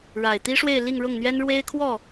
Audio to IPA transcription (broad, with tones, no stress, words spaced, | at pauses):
ɻa˨˩ɪ̯t̪i˥ʂwe˥˧ɪ̯ li˥˧ŋɻʊ˥˩ŋn̪ɥɛ˥n ɻwe˥ɪ̯kʰwɔ˥˩